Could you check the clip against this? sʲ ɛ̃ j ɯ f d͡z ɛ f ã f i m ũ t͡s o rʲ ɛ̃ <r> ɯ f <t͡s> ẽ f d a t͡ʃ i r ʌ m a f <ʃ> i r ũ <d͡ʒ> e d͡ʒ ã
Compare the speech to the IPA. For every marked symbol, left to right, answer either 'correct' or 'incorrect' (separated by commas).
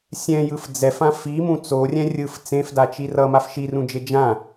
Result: incorrect, correct, correct, correct